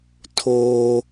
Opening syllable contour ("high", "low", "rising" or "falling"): high